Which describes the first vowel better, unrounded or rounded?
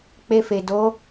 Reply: unrounded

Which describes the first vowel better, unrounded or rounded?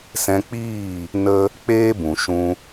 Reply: unrounded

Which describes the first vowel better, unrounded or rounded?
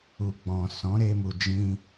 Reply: rounded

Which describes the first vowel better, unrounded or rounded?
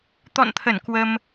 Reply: rounded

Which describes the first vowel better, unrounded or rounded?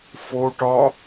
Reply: rounded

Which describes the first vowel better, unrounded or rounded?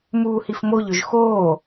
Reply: rounded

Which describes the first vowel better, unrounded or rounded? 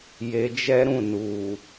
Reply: unrounded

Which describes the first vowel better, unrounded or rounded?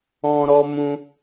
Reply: rounded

